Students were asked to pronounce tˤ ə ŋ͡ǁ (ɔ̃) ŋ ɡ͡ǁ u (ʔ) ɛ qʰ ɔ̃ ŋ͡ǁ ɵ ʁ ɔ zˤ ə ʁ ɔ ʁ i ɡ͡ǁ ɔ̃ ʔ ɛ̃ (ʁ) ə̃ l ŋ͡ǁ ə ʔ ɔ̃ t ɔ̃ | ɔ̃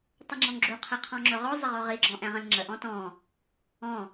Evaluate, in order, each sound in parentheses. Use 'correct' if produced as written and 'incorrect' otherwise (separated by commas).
correct, incorrect, correct